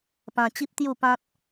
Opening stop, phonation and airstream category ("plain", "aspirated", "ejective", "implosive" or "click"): plain